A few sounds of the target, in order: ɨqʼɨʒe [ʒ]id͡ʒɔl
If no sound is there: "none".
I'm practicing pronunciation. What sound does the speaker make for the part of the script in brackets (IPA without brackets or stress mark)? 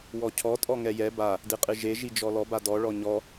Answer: ʒ